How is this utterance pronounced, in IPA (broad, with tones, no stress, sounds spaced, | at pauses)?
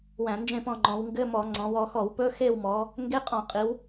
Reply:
w æ̃˧˩˧ n d͡ʒ ẽ˦˨ p ɔ̃˦˨ ŋ͡ǃ ɔ̃˩˧ w ŋ ɡ ɘ˧˥˧ m ɔ˧˩˧ ŋ͡ǀ ɔ̃˩˧ w ɔ˩˧ x ɔ˧˩˧ w p ɵ˧˥˧ x e˦˨ w m ɔ˩˧ | ŋ ɡ e˧˥˧ qʼ ɔ̃˧˩˧ qʼ i˩˧ w